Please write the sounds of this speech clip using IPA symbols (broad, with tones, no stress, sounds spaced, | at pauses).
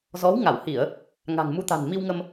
z ɔ˨˦ w ŋ a˧˩ w h i˧˩˨ ə̯ | ŋ a̤˨˩ ŋ m u˨˦ t̪ a̤˨˩ n m i˧ w ŋ ə˧ m